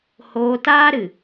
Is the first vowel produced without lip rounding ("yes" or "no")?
no